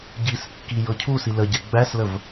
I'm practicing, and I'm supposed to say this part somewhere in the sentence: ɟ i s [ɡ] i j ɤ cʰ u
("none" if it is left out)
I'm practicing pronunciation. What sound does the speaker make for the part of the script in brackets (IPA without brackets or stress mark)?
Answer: kː